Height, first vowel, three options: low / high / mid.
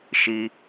high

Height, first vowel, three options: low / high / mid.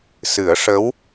high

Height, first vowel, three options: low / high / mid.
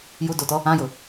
high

